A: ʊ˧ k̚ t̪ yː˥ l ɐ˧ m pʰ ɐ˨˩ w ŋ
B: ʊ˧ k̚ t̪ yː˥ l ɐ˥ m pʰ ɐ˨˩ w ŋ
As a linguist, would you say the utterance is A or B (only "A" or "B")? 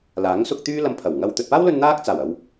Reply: A